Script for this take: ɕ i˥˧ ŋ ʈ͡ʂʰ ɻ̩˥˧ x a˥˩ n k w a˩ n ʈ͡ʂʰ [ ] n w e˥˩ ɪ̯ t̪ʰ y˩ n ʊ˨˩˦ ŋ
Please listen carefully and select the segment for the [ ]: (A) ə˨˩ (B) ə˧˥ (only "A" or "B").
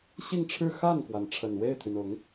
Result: A